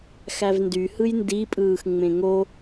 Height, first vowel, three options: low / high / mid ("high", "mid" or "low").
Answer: low